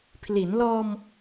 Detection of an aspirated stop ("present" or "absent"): present